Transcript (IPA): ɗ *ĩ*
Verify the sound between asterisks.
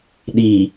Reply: incorrect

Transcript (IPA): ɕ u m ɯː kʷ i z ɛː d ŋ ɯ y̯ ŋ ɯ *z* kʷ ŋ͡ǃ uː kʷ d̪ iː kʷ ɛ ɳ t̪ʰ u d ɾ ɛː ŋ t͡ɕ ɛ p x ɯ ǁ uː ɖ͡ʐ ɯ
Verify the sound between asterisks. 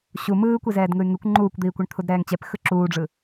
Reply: incorrect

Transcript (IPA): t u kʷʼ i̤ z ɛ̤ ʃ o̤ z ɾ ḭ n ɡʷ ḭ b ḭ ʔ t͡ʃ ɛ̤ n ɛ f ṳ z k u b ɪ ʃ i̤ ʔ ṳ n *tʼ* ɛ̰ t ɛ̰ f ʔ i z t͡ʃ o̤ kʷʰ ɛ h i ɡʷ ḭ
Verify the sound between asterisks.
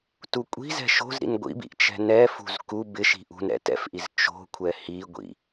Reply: incorrect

